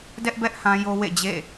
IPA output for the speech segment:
d ɛ˦ ʔ b ɛ˦ ʔ h ã˦ j o˦ w ḛ˦˨ d͡ʑ ḛ˦˨

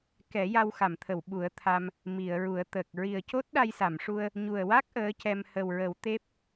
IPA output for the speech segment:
k ɛ˨˩˦ j a˧ w x a˨˩˨ m t̪ʰ ə˨˩˨ w ɓ u˨˩˦ ə̯ t̪ʰ a˧ m | m i˨˩˨ ə̯ ɹ u˨˩˦ ə̯ t̪ əː˨˩ k̚ ɹ i˨˩ ə̯ c o˦˥ t̚ ɗ a˧ j s a˨˩˨ m ʂ u˧ ə̯ | ɲ u˨˩ ə̯ w a˦˥ k̚ ʔ əː˧˥ c ɛ˧ m h ə˨˩ w ɹ ə˨˩˦ w t̪ e˦˥ p̚

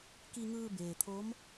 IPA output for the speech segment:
k i˧ ŋ ɯː˧ b eː˩ t̪ʰ o˧˥ m

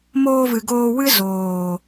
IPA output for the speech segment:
m oː˧ v ɨ˨ ɡ oː˧ w ɨ˦ z oː˨

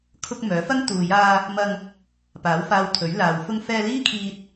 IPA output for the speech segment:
kʰ ʊ˧ k̚ m œː˨˥ f ɐ˥ ŋ t̪ uː˨ j aː˧ | m ɐ˧ ŋ | p aː˨˥ w f aː˧ w t̪ʰ ɵ˨˥ ɥ l aː˨ w f ʊ˧ ŋ f ɛː˧ l iː˥ kʰ iː˧ t̚

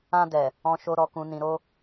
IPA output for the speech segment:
ã˧ d ɛ˨ | ɔ̃˨ ʃ o˨ ɾ ɔ˨ k ũ˨ n ĩ˨ ɾ o˧

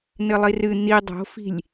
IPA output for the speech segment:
n ɘ lˠ i r ɨ n̪ i dˤ o̤ f i̤ lʲ

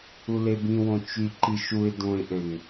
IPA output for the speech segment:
u l e b ĩ w õ t͡ʃ y ǃ i ʃ u ɪ̯ d õ ɪ̯ ʔ ø ŋ

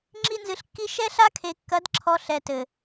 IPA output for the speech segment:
ŋ͡ǁ i˦ n z ɨ˧ ɬ kː i˦ ʃ ɛ˦ ɬ a˦ kʰ e˨ kː ɐ˨˦ d ǁʰ ɔ˧ ɬ ɛ˨ t ɘ˨

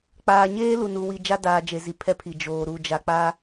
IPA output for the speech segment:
k͡p aː˨ ɲ eː˦ l u˨ n u˨ w i˨ d͡ʒ a˦ d aː˨ d͡ʒ e˨ z i˨ pʰ ɛ˦ pʰ i˨ d͡ʒ oː˨ ɾ u˨ d͡ʒ a˨ k͡p a˦

